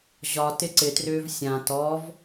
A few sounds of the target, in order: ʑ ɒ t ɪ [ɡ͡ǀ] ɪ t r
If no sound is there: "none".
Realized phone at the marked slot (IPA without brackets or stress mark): ǀ